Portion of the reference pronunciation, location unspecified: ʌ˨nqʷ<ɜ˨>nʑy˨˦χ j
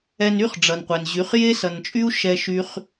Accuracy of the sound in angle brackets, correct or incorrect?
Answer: incorrect